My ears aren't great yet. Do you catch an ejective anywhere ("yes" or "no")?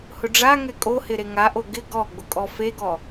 yes